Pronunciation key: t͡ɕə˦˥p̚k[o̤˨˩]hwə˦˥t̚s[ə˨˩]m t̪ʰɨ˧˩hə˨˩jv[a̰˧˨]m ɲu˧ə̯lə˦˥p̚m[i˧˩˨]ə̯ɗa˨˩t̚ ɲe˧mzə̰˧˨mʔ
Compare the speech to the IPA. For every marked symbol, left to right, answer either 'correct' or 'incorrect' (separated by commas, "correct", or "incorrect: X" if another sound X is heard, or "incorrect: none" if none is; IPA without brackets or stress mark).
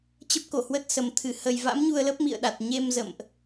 incorrect: o˧˩, correct, incorrect: a̰˧˥, incorrect: ḭ˧˨